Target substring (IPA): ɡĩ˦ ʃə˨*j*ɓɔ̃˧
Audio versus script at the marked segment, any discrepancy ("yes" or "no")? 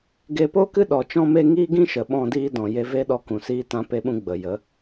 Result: yes